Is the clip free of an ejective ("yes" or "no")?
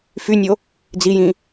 yes